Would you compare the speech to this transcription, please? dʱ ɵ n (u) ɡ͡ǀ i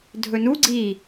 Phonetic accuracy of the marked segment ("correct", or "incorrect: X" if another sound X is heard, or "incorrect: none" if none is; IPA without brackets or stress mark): correct